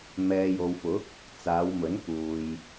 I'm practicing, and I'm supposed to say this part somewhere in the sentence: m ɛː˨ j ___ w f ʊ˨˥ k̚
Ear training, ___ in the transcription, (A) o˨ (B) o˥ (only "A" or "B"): A